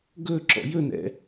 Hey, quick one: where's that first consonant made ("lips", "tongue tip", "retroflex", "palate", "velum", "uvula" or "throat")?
velum